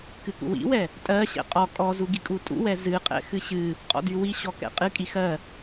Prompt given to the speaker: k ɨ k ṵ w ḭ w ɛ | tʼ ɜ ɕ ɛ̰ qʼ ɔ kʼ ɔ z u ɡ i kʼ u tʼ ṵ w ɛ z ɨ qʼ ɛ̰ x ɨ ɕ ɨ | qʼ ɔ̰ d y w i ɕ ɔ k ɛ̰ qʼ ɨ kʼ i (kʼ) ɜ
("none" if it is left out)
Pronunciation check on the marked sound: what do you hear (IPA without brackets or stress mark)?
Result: x